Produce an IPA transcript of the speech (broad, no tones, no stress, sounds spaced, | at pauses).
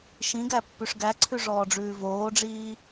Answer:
ʃ ĩ ɡ æ pː ʉ ʂ ɡ æ ǀʰ ʉ ʐ ɔː ɖ͡ʐ ʉː v oː ɖ͡ʐ iː